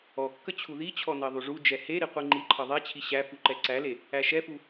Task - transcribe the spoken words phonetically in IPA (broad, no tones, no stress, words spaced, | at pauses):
ɔkːə t͡ɕʰuðit͡ɕʰɔ nɜðˤuʐud͡ʒɛ heɾi qʷiŋ͡ǃiǃʰʌ ðˤɛt͡ɕʰi ɕæfu ǃɛǀæle | æʃɛfu